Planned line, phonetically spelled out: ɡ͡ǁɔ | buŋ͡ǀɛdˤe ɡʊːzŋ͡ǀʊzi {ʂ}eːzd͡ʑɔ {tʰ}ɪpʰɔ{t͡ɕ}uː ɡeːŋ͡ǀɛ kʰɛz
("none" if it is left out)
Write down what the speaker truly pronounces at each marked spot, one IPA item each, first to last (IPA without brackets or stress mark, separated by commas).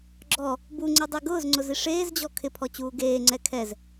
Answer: ʂ, kʰ, t͡ɕ